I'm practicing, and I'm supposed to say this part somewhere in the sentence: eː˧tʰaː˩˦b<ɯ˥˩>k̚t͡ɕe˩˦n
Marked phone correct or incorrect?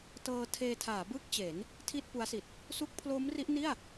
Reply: correct